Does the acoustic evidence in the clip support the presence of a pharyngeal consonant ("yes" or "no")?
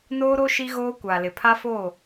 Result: no